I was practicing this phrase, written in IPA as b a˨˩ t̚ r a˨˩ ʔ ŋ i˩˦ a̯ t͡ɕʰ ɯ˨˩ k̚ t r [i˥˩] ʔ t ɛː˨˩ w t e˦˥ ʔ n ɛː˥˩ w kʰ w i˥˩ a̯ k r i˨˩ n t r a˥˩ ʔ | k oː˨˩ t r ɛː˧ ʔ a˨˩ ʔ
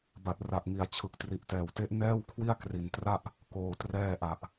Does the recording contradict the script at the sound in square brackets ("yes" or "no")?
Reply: yes